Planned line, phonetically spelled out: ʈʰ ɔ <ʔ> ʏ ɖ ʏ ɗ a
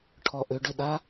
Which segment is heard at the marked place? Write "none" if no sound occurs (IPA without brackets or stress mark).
ʔ